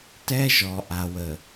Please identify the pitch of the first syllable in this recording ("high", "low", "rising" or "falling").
high